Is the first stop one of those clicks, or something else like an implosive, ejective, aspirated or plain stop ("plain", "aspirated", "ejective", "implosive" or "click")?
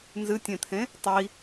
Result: plain